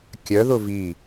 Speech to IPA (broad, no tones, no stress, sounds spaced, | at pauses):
kʲ œ ð ʊ v i